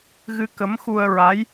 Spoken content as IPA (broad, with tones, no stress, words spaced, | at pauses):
ɣɨ˧kə˧˥mxu˧ə̯ ɹa˧˥j